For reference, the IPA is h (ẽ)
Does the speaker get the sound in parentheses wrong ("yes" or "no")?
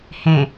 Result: no